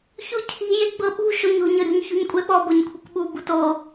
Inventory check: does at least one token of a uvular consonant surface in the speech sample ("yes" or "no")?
no